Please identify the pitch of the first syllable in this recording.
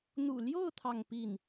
low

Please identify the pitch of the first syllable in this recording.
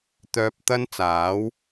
high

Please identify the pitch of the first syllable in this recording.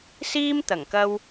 high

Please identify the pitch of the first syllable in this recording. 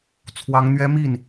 rising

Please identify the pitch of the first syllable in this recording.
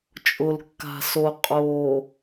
low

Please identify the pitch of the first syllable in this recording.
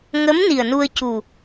rising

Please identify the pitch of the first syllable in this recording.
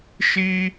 high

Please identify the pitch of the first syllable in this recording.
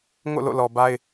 falling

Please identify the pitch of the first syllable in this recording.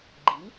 rising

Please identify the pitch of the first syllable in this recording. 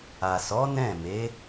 low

